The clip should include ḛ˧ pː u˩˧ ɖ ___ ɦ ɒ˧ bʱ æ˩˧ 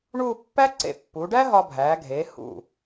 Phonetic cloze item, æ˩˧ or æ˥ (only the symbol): æ˥